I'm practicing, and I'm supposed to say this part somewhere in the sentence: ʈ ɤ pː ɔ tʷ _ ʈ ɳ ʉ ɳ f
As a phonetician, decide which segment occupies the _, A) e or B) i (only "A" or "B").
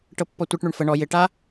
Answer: B